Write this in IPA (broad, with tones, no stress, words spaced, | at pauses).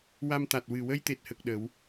wa˧mt̪a˨˩t̚ wɨ˨˩wə˧jt̪e˨˩t̚hə˨˩k̚ ɗə˨˩˦w